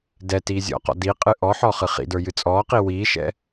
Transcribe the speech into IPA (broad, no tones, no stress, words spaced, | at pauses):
dɛ tiːzʲɔ̰qɔ̰ di qʼɨʔɔħɔ χɨχḭdə˞ jɨt͡sʼɔːqi wiːʃɛ̰